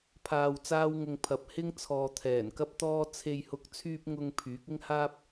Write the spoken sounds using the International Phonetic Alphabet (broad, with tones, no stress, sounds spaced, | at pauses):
pʰ aː˧ w t͡s aː˥ w ŋ ʊ˧ ŋ pʰ ɐ˨ p̚ h ɪ˥ ŋ t͡sʰ ɔː˨ t̪ʰ ɛː˨˩ n k ɐ˥ p̚ t̪ ɔː˥ t͡sʰ e˧ j h ʊ˧ k̚ t͡sʰ yː˧ p̚ ŋ ʊ˧ ŋ pʰ yː˨˥ k̚ ɪ˥ ŋ h aː˥ p̚